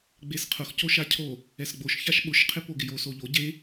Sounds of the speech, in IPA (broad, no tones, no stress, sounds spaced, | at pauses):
ɡ͡b e s qʰ ʊ x c o ʃ a cʰ o | ɛ s ɡ͡b o ʃ ç a ʃ ɓ ʊ ʃ qʰ ɪ p o ɡ ɪ j o s o ʎ o ɟ e